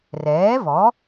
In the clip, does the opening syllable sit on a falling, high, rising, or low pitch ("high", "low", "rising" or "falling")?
rising